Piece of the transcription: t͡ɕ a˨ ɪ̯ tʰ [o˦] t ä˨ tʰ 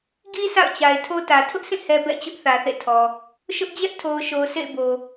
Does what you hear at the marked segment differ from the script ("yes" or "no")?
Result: no